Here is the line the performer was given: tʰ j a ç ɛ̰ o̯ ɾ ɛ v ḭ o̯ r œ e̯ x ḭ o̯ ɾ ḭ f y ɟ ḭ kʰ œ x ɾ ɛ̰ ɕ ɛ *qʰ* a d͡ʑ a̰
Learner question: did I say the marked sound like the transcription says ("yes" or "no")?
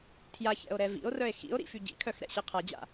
yes